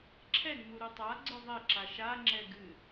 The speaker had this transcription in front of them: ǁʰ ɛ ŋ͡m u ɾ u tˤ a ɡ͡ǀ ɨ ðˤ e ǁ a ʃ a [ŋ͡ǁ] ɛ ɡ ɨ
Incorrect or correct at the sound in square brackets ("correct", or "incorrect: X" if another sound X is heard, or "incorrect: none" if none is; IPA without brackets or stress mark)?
correct